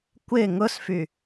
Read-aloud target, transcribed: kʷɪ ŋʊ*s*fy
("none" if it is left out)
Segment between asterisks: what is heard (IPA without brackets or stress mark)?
s